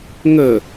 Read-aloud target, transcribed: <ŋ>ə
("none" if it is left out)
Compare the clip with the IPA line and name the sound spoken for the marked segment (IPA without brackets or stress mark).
ŋ